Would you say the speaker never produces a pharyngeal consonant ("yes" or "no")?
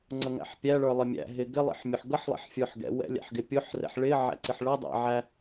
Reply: no